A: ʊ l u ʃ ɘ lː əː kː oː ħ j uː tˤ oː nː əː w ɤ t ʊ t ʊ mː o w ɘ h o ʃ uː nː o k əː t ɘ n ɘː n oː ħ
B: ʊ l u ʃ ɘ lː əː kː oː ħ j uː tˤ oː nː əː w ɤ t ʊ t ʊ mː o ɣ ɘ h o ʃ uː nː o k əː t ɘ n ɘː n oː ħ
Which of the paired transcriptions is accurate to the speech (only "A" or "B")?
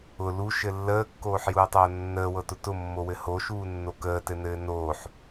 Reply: A